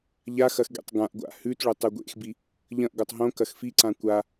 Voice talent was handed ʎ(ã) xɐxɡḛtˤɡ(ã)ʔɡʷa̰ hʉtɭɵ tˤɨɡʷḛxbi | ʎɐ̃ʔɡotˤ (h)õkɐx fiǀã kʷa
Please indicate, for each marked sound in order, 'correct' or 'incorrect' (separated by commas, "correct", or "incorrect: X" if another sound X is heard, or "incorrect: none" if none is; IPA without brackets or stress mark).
incorrect: a, correct, incorrect: ɦ